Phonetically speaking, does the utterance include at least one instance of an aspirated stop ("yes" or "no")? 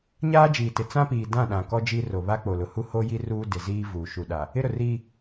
no